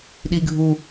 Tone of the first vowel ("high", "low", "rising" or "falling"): high